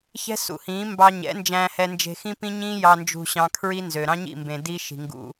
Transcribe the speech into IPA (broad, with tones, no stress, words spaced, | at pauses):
çɛ̤˦sṵ˨hĩː˨˦ mbɑ˧ ɲɛ̰˨˦nd͡ʒæ̃ː˧hɛ˧nd͡ʒe̤˧ xĩ˦pĩ˦ɲĩː˦ jɑ˧nd͡ʒṳ˧ɕɑ̃˧ kʰɹi˦nzø˨ ɾɑ̃˦ɲḭ˦˨mbẽ˨ di˦ʃi̤˨ŋɡṵ˧